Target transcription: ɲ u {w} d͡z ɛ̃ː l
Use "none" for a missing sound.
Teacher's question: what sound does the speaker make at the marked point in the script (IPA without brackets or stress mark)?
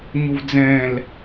v